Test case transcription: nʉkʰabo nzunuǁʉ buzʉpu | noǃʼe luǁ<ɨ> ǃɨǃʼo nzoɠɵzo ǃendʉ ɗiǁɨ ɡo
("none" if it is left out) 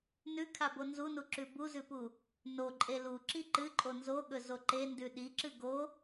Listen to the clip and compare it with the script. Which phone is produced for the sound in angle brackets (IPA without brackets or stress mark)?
i